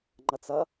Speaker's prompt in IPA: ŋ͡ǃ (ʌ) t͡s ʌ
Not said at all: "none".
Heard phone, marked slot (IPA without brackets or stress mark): ʌ